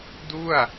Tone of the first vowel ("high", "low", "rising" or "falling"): falling